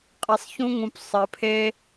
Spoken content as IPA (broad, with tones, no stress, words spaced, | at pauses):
qʼe˧sˤçũ˦ŋũ˧p sˤɘ˧pʰe˦